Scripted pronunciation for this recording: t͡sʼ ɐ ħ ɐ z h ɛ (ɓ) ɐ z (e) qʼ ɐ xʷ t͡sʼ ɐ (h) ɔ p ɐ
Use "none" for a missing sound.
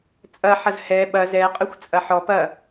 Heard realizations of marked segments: ɓ, ɛ, ħ

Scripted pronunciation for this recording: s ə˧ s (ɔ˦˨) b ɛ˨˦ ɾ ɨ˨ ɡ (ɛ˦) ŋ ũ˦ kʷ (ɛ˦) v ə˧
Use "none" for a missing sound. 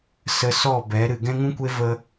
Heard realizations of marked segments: ɔ˦˨, ɛ̃˦, e˦

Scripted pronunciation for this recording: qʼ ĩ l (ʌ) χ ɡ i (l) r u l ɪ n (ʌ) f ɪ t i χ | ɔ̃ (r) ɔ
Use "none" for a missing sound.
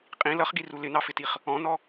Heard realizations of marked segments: ʌ, none, ɑ, n

